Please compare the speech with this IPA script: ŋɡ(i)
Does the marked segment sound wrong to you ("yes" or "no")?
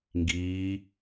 yes